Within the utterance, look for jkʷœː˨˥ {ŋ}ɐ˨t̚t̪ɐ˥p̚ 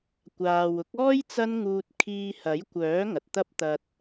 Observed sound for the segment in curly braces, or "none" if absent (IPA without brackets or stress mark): ŋ